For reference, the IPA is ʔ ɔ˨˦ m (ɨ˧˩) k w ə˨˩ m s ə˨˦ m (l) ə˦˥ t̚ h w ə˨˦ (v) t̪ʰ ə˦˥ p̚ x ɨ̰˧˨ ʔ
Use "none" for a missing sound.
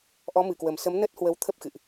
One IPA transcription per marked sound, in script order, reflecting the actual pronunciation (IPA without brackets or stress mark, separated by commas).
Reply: ɨ˧˩, n, w